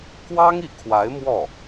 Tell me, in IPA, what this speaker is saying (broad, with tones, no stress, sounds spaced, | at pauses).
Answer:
k w ɑ˥ ŋ i˧˥ kʰ w a˧˥ ɪ̯ m w ɔ˥˩